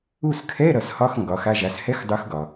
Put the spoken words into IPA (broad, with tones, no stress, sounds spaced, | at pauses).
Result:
u˦˨ s kʰ ɛ˧˥˧ ɾ ʌ˩˧ s h ɒ˧˥˧ x ŋ ɡ ɒ˩˧ x a˦˨ ʒ a˩˧ s h ɛ˧˥˧ x dˤ u˨˥ x ɡ ɒ˩